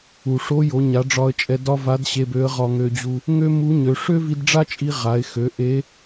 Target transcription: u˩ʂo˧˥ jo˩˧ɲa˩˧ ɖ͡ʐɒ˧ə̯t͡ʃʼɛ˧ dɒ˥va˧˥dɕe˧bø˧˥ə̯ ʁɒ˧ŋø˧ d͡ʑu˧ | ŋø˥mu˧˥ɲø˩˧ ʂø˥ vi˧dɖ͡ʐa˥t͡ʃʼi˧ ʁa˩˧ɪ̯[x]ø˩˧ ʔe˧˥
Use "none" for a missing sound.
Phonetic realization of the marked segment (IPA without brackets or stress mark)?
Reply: x